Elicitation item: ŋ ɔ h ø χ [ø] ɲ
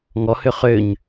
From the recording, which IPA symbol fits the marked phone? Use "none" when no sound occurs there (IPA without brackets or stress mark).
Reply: ø